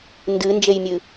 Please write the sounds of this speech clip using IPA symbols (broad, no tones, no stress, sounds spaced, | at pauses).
n d ɨ n d͡ʒ e j mʲ ɨ